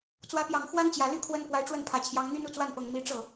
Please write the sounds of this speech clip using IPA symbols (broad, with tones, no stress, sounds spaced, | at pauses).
t͡s w ä˧˥ p j ɑ˨˩ ŋ x w a˥ n t͡ɕ j ä˨˩ l y˥˩ kʰ w ə˥ n p w a˧˥ ɪ̯ ʈ͡ʂ w ə˥˩ n pʰ ä˨˩ t͡ɕʰ j ɑ˧˥ ŋ n̪ y˥ n u˥˧ t͡s w a˥˩ n p ɤ˨˩ ŋ m i˧˥ ʈ͡ʂ ɤ˥˩